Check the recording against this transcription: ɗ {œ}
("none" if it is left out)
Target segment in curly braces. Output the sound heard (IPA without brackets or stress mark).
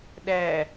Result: æ